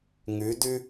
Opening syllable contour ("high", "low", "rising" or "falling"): rising